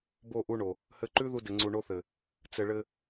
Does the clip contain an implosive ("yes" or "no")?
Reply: no